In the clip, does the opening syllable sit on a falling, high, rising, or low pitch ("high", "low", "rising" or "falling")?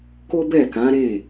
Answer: high